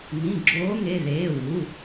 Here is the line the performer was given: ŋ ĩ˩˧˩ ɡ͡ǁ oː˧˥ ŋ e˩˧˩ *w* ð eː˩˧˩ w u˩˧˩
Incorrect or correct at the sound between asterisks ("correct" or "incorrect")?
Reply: incorrect